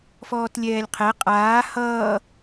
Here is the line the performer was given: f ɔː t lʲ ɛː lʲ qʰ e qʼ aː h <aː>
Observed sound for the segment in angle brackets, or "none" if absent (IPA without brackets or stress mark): ʌː